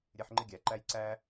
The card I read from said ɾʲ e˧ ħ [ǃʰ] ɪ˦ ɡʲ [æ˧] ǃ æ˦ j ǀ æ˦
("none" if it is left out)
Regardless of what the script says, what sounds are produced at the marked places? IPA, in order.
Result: ŋ͡ǃ, æ˨

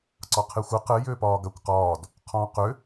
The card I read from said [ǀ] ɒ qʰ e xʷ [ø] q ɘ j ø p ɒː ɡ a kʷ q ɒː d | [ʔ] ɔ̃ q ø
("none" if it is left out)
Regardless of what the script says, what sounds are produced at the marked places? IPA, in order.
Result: ǀ, ɘ, qʰ

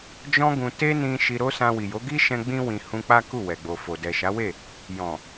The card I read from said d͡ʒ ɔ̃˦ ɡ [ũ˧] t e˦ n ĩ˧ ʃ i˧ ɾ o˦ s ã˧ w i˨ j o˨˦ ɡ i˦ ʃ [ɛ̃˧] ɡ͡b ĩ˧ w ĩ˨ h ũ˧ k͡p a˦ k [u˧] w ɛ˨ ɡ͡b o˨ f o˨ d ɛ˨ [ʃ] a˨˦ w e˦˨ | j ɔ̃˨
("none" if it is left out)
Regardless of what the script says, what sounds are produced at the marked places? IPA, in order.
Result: ũ˧, ɛ̃˧, u˦˨, ʃ

